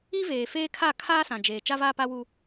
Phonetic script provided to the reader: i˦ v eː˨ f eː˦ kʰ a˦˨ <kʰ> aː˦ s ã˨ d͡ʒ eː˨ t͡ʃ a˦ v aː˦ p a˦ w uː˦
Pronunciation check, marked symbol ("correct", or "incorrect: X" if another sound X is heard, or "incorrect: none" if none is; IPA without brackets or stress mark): correct